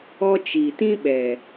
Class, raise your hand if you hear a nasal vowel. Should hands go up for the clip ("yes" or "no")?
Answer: yes